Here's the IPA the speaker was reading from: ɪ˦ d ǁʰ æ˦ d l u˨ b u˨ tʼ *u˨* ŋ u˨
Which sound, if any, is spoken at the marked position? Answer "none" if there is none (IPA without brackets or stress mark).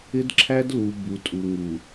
u˨